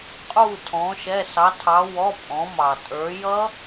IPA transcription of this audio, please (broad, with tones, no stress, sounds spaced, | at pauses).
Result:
qʼ u˧˩ tʰ ɔ̃˩˧ ʃ ɛ˩˧˩ s ɑ˩˧ tʰ ɑ˩˧ w ɔ˩˧˩ pʼ ɔ̃˩˧ m ɑ˩ tʼ ə˞˩˧ j ʌ˦˥